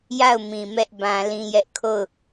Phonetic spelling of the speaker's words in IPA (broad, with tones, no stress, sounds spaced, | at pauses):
j a˦˨ ʊ̯ m ĩ˨ m ɛ˦ ʔ b ã˦ l ĩ˦ j ɛ˦ ʔ kʰ o˦˨ ʊ̯